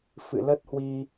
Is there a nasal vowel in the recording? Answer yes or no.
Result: no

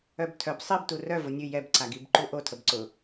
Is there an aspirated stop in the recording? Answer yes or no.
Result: yes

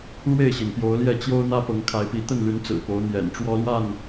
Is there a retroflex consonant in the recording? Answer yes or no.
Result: yes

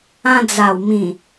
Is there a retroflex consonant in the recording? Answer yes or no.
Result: no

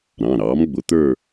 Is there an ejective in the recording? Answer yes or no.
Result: no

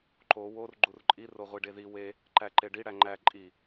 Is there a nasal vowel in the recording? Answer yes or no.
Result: no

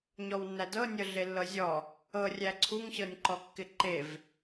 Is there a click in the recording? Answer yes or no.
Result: yes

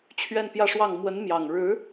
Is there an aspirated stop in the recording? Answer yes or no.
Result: yes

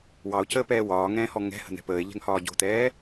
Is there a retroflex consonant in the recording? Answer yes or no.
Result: no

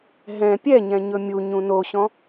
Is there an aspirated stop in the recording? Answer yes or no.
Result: no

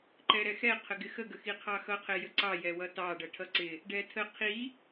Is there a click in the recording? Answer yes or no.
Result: yes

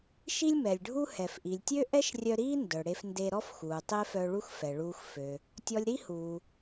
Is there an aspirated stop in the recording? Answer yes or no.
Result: no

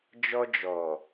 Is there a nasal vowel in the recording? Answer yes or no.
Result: no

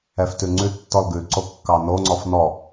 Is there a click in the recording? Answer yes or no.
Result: yes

